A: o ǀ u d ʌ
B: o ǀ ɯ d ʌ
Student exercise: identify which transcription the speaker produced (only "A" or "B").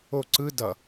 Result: B